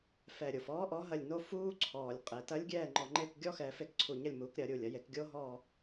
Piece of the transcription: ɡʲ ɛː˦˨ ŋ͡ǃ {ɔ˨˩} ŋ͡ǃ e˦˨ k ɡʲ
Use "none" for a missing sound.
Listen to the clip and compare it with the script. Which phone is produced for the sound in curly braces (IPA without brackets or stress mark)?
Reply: ɔ˨˩